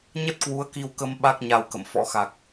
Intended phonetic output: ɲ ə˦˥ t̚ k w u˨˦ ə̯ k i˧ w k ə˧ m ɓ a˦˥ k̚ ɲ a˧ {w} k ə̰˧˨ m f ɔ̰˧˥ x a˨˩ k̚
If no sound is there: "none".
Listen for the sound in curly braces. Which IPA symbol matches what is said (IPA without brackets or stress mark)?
w